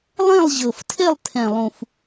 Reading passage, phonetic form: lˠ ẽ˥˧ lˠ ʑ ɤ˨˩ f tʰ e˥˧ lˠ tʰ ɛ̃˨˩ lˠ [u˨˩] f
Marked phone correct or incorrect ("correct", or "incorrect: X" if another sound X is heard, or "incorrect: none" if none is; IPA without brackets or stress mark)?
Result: incorrect: ũ˨˩